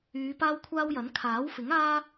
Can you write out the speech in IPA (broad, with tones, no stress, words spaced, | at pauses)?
yː˨˧paː˥wkʷʰaː˥wjɐ˨˥n kʰaː˨˥wfɪ˨˥ŋ aː˥